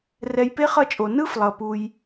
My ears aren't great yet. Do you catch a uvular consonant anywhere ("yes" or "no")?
yes